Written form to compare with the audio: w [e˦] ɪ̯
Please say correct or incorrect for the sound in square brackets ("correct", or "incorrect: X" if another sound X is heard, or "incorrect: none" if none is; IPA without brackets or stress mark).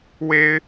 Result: correct